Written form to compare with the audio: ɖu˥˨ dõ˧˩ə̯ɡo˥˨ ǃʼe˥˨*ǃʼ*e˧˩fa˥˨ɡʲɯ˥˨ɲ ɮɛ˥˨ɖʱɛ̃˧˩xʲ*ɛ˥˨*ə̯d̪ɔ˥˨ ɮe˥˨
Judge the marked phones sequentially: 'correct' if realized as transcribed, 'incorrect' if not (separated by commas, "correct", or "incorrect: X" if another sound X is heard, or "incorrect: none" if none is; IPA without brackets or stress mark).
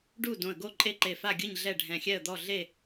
incorrect: ǃ, correct